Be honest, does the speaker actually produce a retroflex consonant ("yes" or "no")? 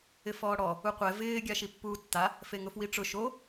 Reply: yes